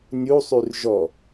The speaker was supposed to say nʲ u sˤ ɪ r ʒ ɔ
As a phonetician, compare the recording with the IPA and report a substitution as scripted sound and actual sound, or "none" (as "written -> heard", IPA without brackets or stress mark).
ɪ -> y